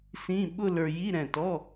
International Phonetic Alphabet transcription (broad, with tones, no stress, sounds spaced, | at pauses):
s ĩ˧˥˧ ɓ ʊ˥˧ l ə˞˧ j i˧˥˧ ɾ ɛ̃˧˩ t ɔ˧˥˧